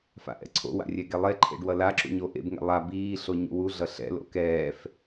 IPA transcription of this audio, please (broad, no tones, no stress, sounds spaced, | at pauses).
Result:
f a̰ ʔ ɛ̰ ǀʰ o̰ w a̰ rʲ ɛ ɡ e lˠ e ǃʰ ḛ ɖ w ʌ l a ǁ ṵ ɲ o ʔ ḛ b ŋ ɛ̰ lˠ a b iː ɬ o ɲ ṵ w u ɮ ʌ ɬ ɛ̰ l o̰ k ɛː f